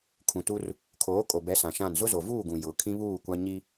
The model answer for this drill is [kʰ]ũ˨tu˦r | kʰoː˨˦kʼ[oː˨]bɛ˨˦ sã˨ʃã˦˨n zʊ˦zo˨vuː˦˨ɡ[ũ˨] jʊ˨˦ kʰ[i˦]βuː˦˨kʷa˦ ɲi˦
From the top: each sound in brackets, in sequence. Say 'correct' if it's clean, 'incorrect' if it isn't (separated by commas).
correct, incorrect, correct, incorrect